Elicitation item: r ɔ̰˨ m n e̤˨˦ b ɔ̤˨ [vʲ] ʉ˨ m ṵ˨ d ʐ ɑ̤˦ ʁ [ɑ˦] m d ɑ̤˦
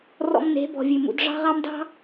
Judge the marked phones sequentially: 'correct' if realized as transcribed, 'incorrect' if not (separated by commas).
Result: correct, correct